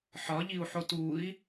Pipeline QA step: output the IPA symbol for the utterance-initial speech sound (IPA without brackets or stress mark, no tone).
ħ